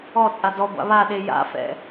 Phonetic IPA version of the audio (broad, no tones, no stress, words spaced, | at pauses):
ɔ t͡sʼadɔɡʷa̰ βaɗe ja̰fɛ̰